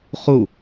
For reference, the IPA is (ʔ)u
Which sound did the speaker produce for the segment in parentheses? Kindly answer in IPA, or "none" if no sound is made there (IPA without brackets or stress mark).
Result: χ